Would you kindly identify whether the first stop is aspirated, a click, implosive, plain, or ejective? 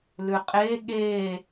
ejective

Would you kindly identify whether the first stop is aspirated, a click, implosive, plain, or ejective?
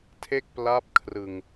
aspirated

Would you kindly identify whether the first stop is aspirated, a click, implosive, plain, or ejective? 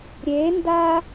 plain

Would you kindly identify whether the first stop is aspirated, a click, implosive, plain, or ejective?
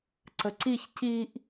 click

